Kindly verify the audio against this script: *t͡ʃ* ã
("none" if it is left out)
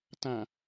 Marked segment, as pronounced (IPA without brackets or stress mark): t